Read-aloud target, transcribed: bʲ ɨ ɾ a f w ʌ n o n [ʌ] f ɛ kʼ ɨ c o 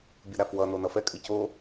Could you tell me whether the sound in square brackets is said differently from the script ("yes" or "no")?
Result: no